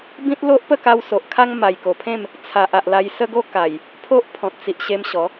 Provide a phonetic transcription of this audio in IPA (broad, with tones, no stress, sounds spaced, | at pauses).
b ĩ˦ t̚ l o˦ ʔ p ə˥˧ k a˧ w s o˨ ʔ kʰ a˦ ŋ m a˨˩ j k o˨˩ pʰ ẽ˥˧ m | t͡sʰ a˨ ʔ a˨ ʔ l a˧ j s ə˦ ɡ o˦ k a˨˩ j | pʰ o˦ ʔ pʰ ɔ̃˨ t̚ t͡s i˨ ʔ ɕ e˧ m ɕ ɔ˨˦